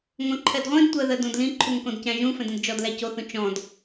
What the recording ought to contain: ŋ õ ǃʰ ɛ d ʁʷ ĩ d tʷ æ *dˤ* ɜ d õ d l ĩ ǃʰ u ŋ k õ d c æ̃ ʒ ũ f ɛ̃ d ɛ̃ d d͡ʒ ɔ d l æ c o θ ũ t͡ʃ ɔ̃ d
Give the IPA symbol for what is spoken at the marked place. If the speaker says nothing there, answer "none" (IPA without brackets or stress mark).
ð